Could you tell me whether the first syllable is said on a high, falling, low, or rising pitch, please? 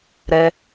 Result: high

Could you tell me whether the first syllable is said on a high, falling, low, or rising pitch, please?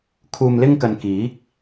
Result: low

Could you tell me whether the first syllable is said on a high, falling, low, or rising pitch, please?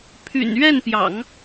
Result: low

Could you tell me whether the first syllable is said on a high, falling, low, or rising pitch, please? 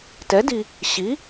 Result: rising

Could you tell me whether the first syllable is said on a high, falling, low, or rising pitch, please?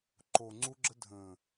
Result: low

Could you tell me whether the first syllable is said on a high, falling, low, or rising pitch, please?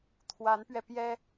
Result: rising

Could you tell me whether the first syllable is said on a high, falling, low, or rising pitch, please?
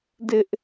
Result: high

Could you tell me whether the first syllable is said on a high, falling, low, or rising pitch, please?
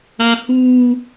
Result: high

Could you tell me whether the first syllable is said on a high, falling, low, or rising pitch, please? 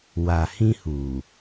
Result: low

